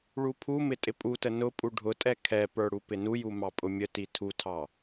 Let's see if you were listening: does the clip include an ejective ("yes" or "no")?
yes